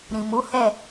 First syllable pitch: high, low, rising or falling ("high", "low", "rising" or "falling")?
low